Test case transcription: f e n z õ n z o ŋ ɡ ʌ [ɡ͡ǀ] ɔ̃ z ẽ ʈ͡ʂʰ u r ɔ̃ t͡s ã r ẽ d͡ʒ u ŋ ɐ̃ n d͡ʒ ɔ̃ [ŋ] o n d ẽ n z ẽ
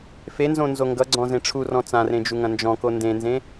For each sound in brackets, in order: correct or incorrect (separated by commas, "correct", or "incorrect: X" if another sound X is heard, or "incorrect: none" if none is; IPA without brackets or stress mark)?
correct, incorrect: k